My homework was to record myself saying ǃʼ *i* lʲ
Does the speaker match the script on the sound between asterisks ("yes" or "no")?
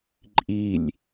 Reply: yes